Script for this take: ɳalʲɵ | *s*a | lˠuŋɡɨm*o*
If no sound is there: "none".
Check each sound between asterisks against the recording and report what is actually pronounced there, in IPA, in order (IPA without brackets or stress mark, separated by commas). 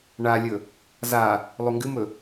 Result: z, ɵ